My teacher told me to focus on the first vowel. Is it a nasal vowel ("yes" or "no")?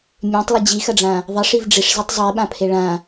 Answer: yes